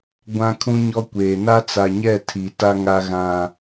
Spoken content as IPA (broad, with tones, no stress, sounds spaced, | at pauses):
ɡʷ ã˦ kʰ ũ˦ ɲ ɔ˦ kʷ eː˨ n a˦ t͡s a˨ ɲ ɛ˦˨ tʰ i˨ t a˦ ŋ a˦ ɣ ã˦